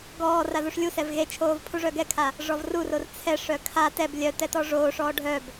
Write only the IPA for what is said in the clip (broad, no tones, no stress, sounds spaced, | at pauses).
ɡ ɔː r a ð u ʂ lʲ u s ɛ v ɣ e t͡ʃʰ oː v pʰ u ʐ œ ɡ ɛ kʰ a | ʐ ɔ v r u r o r t͡sʰ ɛ ʂ œ kʰ a t ɛ b lʲ œ t ɛ t ɔ ʐ oː ʂ ɔː ɖʱ œ b